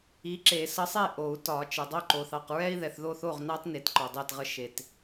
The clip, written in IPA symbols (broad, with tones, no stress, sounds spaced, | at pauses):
i˨˥ ǁ e˨˩˦ s ə˨˥ sˤ e˥˩ ʔ o˨˩˦ u̯ t ɒ˨˩˦ t͡ʃ ə˨ dˤ o˥˩ ǃ o˨ θ ɑ˨ q ɹ ɛ˦ i̯ ð ɛ˨ θ ð o˥˩ θ o˥˩ ʁ n ɑ˦ t n e˨˥ t ǃ ɔ˨ dˤ e˥˩ t ʁ ə˦ ʃ e˨ t